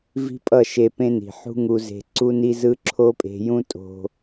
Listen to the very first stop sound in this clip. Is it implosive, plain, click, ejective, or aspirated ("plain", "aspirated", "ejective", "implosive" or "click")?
ejective